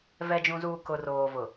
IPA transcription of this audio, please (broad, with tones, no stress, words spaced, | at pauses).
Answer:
vɛ˨d͡ʒũ˨zuː˨ kʊ˨roː˨vʊ˨